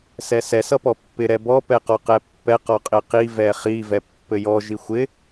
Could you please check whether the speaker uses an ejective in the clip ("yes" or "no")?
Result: yes